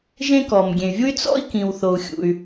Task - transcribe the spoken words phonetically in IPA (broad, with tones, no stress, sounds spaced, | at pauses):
ʒ ẽ˥ k ɔ˩ m ɡʲ ẽ˩ y̯ vʲ u˥ y̯ t͡s ɔ̰˥ i̯ k ĩ˩ w θ o˩ u̯ xʲ ṵ˩ y̯